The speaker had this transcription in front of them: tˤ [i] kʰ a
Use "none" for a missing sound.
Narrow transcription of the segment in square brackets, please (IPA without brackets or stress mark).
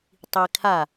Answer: i